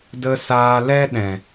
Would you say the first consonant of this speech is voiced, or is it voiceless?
voiced